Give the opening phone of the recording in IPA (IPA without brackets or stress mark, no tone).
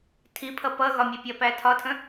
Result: tʰ